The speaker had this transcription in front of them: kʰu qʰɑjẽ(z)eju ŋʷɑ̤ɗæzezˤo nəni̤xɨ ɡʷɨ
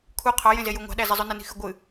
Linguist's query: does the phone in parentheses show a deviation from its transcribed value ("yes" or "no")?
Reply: no